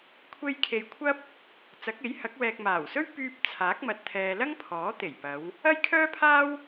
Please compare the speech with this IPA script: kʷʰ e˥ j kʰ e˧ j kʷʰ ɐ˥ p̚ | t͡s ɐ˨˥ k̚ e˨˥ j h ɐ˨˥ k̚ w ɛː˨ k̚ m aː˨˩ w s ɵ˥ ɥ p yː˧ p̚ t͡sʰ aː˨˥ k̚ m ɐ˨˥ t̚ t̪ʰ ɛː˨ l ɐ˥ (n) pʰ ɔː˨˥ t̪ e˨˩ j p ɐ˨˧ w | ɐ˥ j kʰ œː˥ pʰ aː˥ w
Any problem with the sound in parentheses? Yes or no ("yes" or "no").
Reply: yes